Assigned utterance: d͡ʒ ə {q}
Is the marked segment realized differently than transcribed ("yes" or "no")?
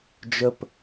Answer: yes